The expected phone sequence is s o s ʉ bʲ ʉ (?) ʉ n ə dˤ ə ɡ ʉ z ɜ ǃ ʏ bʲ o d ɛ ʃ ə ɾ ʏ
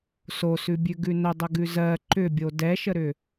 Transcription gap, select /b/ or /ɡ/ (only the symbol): ɡ